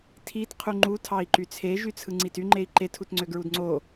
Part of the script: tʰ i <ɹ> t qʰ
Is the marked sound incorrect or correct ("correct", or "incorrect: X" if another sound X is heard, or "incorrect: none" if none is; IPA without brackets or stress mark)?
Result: incorrect: none